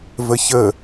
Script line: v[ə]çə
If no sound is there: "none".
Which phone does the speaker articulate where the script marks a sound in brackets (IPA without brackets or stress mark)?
ə